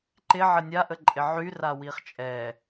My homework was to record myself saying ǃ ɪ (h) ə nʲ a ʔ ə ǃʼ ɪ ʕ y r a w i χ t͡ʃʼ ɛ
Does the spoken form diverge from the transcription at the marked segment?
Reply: yes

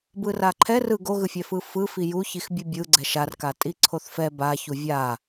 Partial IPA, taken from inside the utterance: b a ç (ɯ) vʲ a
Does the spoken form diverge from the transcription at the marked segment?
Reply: yes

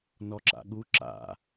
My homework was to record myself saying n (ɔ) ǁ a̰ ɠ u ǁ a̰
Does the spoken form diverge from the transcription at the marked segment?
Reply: no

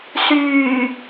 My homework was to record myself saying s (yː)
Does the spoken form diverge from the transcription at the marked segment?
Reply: no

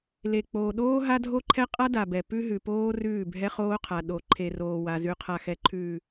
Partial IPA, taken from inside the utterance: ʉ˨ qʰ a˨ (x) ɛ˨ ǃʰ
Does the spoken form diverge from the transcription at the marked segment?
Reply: no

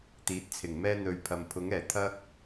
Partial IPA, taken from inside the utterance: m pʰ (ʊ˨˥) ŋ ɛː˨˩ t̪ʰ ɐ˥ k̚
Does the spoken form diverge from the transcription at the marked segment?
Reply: no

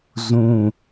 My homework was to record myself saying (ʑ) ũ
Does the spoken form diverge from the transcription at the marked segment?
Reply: yes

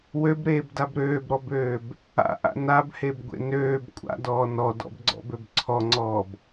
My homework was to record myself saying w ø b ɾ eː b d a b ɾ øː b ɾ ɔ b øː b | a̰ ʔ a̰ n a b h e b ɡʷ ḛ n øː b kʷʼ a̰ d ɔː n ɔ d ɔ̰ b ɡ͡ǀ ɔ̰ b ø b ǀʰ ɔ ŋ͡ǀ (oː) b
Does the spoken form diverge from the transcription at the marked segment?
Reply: yes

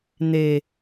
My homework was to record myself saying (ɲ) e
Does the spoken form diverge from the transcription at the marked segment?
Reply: yes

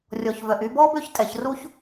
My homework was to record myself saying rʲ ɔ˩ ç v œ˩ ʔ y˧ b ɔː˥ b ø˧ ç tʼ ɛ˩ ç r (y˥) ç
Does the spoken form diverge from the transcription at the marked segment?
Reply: yes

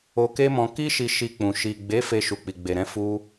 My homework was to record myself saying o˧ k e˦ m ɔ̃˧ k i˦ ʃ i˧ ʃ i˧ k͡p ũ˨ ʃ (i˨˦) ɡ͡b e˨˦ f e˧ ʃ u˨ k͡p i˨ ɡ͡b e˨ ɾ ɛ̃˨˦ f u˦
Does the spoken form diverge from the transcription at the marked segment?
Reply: yes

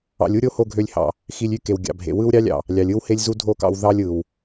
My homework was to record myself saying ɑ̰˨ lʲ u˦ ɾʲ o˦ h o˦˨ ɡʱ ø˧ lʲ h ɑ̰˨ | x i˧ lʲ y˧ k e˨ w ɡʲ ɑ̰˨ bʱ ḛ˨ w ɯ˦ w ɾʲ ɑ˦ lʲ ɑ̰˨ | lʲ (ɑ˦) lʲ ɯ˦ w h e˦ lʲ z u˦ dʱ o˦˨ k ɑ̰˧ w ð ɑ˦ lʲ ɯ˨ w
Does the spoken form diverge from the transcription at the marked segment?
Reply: yes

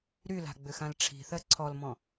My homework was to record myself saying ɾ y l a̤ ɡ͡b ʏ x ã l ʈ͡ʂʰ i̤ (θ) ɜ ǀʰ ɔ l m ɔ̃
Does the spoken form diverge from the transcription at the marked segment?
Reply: no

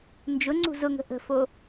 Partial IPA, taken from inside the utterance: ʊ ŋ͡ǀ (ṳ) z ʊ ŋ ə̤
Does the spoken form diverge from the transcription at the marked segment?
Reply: no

